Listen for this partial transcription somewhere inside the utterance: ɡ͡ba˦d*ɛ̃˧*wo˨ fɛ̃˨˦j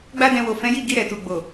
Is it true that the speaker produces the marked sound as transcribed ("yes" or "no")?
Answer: yes